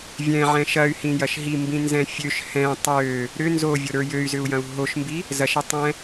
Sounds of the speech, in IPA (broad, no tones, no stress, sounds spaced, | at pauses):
vʲ ɛ̃ ʕ ɛ̃ ʃ ɐ y̯ h ĩ j ɐ ʃ ɦ i m b ĩ n z ɛ̃ fʲ ø ʃ h ɛ̃ tˤ ø | ɾ ʏ n z o vʲ o ɾ ə˞ j ø y̯ z ʏ u̯ j ɐ̃ u̯ ɦ o ʃ m b i | z ɐ ʃ ɐ tˤ ɛ̃